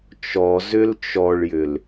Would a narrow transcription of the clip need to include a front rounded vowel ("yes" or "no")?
yes